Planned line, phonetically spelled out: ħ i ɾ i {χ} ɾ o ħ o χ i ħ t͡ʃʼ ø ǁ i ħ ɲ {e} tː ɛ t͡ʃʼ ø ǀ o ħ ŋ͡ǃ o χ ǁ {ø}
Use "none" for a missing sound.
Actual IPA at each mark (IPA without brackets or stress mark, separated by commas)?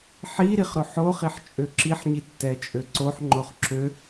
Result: χ, i, ø